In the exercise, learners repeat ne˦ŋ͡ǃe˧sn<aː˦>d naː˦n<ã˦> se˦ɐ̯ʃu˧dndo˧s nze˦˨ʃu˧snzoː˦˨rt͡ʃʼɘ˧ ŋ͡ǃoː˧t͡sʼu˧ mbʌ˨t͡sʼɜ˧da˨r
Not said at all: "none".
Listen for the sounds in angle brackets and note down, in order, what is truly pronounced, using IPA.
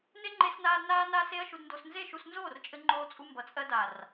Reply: aː˧, a˦

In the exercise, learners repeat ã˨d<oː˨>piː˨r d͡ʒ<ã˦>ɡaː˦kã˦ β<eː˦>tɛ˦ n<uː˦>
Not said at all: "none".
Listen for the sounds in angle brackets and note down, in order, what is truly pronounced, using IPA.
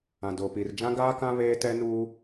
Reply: oː˨, ã˦, eː˦, uː˦

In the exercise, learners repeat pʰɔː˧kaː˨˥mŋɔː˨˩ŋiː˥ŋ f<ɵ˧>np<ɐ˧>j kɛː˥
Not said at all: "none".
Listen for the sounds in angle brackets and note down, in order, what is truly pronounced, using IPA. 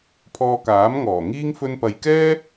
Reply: ɵ˧, ɐ˨

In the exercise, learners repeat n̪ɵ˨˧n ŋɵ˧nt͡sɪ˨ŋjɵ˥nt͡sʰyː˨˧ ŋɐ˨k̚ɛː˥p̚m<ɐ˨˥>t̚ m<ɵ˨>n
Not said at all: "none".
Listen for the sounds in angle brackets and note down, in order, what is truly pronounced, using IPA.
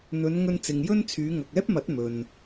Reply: ɐ˨˥, ɵ˨

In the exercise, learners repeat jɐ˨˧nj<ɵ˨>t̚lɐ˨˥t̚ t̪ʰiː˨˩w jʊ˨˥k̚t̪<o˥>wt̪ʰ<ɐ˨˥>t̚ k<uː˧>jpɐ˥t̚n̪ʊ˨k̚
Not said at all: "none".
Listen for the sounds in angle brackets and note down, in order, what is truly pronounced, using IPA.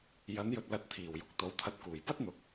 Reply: ɵ˨, o˨˥, ɐ˧, uː˨˩

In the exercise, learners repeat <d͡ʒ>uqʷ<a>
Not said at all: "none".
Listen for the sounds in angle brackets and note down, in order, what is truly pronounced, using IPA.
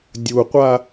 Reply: dʲ, a

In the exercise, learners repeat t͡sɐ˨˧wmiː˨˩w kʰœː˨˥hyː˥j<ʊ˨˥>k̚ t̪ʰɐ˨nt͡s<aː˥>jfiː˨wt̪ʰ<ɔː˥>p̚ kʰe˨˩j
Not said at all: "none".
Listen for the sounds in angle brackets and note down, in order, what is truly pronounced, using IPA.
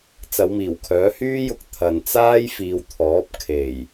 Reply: ʊ˧, aː˥, ɔː˨˥

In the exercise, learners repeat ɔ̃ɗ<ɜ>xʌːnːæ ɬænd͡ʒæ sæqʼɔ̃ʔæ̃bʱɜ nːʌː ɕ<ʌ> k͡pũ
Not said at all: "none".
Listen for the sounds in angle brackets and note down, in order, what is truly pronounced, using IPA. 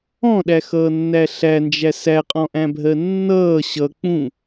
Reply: æ, ʌ

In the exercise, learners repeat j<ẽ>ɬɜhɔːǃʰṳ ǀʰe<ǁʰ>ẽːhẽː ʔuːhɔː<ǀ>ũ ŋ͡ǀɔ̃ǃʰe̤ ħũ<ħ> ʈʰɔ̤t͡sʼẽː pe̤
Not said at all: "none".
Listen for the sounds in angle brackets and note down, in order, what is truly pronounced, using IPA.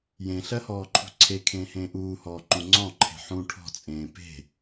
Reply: ẽ, kʰ, ǃ, none

